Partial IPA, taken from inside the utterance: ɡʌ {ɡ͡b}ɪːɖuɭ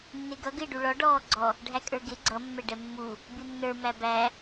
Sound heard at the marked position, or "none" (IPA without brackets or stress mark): ɡ